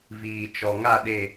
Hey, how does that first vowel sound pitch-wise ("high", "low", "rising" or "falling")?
low